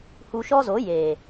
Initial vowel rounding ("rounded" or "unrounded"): rounded